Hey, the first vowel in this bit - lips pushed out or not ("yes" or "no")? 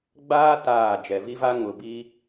no